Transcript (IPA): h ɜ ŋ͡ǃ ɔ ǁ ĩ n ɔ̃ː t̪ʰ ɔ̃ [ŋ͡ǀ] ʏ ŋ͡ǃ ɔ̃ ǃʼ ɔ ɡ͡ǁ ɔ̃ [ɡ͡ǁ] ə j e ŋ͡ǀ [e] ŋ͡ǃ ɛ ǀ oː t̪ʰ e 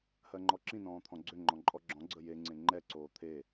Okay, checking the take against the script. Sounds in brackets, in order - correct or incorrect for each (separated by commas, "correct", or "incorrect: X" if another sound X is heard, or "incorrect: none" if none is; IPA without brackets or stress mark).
incorrect: ɡ͡ǀ, incorrect: ɡ͡ǀ, incorrect: ẽ